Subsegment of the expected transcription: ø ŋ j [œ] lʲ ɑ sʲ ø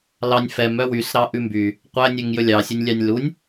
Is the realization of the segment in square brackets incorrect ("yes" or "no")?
yes